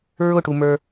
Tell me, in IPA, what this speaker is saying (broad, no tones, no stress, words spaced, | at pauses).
ɹʊʈumə˞